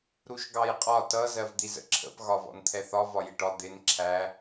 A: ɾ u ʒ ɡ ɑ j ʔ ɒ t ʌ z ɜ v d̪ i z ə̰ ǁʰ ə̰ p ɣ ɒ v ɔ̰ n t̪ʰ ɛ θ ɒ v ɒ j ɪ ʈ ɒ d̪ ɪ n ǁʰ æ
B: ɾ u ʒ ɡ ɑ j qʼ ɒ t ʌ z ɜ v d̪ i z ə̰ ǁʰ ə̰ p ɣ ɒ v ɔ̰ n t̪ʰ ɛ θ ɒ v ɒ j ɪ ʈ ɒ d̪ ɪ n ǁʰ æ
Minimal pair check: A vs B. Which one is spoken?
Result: B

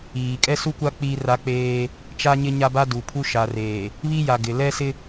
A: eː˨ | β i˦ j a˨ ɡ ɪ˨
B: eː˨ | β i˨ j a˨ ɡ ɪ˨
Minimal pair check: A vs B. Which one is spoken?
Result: A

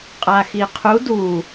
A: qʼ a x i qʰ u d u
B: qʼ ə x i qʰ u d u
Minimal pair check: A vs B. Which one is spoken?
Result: A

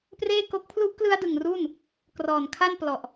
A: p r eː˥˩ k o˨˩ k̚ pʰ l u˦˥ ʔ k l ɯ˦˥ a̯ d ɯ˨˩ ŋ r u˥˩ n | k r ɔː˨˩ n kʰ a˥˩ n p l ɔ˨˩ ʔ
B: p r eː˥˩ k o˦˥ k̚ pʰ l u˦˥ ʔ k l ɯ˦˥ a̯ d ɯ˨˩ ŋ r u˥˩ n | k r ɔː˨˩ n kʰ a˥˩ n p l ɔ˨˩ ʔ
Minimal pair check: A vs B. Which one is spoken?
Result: B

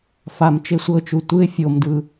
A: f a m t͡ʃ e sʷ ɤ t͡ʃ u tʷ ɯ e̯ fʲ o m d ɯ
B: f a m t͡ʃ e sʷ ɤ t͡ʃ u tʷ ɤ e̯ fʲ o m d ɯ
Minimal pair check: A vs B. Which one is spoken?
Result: A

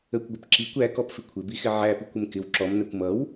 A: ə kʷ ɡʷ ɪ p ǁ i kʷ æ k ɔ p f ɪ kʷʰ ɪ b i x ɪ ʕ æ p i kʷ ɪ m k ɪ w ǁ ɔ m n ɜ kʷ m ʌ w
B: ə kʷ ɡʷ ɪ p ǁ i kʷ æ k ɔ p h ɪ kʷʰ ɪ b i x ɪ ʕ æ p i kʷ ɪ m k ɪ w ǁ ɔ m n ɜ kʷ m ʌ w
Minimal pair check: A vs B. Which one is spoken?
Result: A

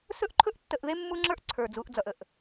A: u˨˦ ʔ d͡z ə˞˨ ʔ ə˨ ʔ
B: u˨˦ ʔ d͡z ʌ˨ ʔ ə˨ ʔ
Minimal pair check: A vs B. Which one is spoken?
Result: B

